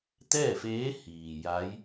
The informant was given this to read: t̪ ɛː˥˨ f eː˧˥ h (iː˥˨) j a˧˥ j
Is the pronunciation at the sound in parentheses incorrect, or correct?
incorrect